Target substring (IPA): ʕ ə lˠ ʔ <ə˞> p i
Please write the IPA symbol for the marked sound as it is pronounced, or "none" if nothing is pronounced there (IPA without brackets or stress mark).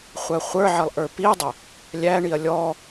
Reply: ə˞